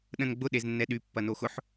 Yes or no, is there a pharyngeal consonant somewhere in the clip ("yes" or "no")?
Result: yes